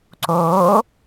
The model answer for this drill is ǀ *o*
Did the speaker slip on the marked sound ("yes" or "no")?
no